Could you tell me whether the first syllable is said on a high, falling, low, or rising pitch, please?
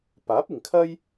rising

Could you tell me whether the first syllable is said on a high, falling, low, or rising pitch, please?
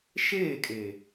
falling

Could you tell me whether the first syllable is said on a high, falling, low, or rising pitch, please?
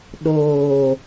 low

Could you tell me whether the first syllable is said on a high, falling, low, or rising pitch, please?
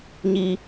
high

